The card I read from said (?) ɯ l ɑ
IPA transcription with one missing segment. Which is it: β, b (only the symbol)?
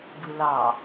b